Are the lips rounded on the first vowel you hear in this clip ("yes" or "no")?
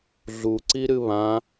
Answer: yes